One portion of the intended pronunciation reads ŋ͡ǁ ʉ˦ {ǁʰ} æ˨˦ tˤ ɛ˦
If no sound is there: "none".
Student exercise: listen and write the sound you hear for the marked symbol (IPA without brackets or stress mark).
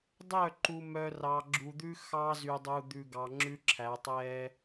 ǁʰ